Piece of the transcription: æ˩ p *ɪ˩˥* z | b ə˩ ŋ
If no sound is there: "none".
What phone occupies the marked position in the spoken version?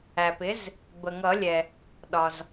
ɪ˩˥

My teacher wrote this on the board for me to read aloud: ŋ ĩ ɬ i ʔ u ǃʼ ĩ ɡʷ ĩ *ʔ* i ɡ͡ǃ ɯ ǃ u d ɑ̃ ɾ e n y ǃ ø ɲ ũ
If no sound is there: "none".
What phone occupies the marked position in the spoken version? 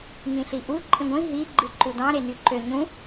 ɦ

